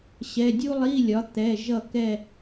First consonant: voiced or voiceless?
voiceless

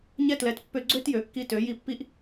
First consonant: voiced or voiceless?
voiced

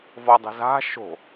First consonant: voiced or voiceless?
voiced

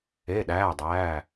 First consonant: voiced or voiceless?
voiced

